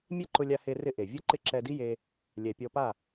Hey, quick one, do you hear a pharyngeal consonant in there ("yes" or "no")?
no